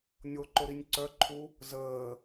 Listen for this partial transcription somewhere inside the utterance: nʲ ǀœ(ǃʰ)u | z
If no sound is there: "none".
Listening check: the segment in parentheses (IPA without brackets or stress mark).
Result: ǃʰ